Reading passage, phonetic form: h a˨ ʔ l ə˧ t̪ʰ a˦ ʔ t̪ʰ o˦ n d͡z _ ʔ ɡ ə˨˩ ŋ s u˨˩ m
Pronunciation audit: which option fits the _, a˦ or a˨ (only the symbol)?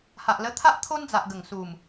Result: a˨